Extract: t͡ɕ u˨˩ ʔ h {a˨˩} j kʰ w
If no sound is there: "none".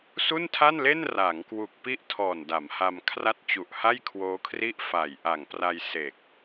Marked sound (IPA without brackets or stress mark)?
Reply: a˥˩